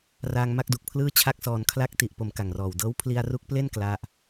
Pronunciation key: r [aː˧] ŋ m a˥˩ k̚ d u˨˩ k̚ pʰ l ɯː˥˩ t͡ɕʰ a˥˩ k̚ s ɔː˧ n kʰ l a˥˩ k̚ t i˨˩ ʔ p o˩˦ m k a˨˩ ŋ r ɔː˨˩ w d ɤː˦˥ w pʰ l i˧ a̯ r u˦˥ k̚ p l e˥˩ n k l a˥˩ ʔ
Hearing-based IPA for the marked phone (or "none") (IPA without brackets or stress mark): aː˧